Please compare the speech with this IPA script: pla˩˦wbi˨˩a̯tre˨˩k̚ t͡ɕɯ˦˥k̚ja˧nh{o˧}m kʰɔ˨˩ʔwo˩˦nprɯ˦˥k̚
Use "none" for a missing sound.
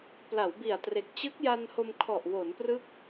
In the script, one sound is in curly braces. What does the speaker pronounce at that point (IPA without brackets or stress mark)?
o˧